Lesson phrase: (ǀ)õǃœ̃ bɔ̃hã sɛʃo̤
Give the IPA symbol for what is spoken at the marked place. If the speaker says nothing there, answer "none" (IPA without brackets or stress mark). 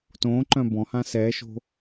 t